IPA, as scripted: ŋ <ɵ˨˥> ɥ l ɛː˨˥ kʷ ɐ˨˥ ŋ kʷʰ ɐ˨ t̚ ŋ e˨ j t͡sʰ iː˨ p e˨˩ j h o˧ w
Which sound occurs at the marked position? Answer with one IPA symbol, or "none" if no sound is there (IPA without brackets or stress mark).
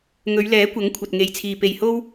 ɵ˨˧